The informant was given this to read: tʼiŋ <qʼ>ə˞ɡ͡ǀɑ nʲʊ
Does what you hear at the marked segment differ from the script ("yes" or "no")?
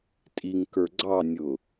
yes